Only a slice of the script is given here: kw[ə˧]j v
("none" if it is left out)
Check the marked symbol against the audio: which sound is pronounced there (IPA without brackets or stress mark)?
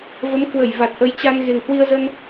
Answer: ə˧˩